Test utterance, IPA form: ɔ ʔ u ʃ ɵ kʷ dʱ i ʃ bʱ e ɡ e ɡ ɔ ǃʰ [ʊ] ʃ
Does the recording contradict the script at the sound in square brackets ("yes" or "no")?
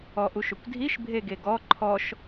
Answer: yes